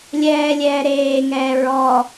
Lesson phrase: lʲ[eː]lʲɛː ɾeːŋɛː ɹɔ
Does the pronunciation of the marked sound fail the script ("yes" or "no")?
yes